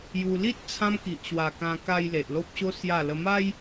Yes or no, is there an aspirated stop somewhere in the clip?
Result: yes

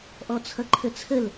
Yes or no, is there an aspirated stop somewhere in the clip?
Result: yes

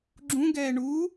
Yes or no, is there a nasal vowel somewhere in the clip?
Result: yes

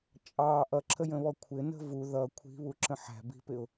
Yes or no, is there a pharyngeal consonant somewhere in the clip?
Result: yes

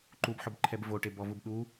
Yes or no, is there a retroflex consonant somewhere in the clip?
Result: yes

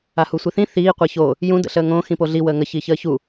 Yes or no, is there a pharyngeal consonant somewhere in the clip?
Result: no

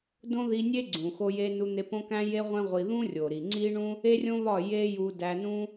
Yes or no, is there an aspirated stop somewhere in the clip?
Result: no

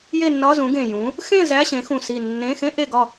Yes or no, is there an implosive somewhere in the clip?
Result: no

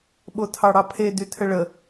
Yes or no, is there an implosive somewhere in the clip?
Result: yes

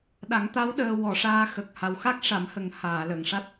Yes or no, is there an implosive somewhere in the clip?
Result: yes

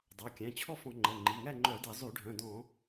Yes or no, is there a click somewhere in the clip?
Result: yes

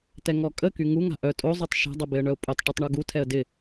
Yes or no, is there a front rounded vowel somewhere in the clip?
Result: yes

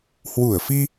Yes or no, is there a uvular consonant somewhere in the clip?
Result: no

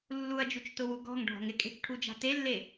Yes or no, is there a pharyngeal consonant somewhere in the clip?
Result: no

